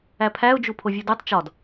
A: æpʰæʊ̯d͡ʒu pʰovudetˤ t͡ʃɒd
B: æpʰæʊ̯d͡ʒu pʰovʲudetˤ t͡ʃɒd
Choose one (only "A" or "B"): B